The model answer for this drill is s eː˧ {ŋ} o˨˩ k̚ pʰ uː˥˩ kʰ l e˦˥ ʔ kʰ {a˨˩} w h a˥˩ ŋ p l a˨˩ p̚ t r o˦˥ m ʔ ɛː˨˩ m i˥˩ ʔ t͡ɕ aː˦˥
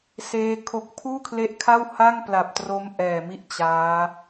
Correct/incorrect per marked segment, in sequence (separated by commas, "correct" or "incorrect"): incorrect, incorrect